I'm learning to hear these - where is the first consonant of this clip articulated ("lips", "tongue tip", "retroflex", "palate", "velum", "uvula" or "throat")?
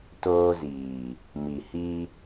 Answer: tongue tip